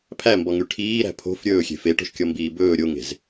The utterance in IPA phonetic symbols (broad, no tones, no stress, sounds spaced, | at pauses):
pʰ æ m b ɔ ŋ y ʈʰ iː ɾ æ̤ pʰ o̤ f ɾʲ ɵː xʲ e̤ f e ʈ o̤ ʃ kʲ ɔ m b iː b ɵː ɾʲ o ŋ e̤ z